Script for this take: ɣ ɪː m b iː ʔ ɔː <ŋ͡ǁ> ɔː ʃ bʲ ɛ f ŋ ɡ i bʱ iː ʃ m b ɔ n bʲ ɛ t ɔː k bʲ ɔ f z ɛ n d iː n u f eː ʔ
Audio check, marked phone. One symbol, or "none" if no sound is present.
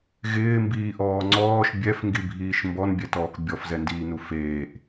ŋ͡ǀ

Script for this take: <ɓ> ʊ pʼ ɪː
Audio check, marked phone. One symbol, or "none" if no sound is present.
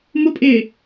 m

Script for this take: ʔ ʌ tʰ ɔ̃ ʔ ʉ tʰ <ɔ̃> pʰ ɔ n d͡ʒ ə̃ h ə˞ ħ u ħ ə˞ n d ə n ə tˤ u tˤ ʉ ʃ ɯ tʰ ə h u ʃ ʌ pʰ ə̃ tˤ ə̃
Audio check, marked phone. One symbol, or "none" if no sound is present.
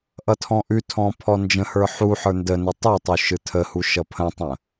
ɔ̃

